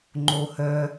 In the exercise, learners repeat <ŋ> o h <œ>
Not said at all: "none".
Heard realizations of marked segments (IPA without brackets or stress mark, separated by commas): ŋ͡ǃ, œ